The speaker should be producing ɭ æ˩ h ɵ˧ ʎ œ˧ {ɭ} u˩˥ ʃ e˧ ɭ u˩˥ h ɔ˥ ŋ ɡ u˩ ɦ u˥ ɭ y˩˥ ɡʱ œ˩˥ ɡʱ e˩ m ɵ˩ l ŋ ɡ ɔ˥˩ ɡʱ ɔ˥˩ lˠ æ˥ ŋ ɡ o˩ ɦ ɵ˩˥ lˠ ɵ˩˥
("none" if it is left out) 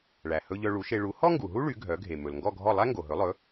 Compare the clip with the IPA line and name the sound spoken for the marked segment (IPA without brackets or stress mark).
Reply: ɭ